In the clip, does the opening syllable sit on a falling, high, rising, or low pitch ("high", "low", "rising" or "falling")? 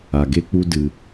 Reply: low